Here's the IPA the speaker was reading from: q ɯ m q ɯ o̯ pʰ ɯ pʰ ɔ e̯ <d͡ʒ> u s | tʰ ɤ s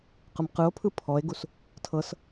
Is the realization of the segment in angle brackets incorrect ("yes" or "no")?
yes